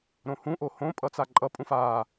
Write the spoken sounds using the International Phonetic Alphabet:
ɾõhũʔo hõ pʼʌt͡saǃʼʌpʼũf a

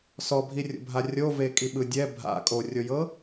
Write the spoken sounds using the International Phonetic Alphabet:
sɔbʱirʲo̰bʱa rʲovekʼiɓɯ dʲɛ bʱa̰ kʼorʲojɤ

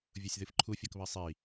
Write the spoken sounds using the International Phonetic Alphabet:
vʲosʲðɨfǃʰu fʲokβɜsˤi

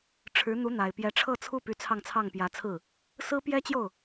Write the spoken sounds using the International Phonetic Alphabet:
ʈ͡ʂʰɻ̩˧˥ n̪u˧˥n̪a˨˩ɪ̯ pjɛ˧˥ʈ͡ʂʰɤ˥˧t͡sʰu˥˩py˧˥ t͡sʰɑ˥˧ŋt͡sʰɑ˥˩ŋpjä˧˥t͡sʰɹ̩˥˩ | sɹ̩˥pjɛ˥t͡ɕjo˥˩ʊ̯

